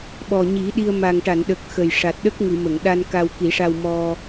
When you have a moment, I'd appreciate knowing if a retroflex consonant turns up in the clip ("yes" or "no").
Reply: yes